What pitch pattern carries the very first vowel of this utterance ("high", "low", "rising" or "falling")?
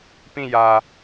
falling